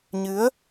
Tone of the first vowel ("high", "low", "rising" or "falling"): rising